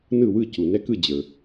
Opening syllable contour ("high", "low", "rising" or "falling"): falling